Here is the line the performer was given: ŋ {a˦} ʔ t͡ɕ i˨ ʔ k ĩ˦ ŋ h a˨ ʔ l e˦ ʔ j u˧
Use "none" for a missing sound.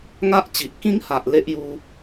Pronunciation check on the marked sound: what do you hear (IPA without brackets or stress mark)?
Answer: a˦